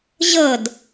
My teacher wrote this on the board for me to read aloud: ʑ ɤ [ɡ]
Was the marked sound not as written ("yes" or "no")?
yes